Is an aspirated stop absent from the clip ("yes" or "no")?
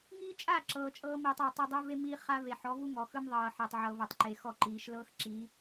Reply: yes